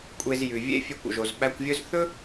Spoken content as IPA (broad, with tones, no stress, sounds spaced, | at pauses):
kʷʼ e˧ z j ʉ˩ vʲ ḛ˥ fʲ ʉ˧ kʷ o̰˩ ʒ o˩ z ɓ æ˧ kʷ vʲ ɵ˥ z θ ɵ˥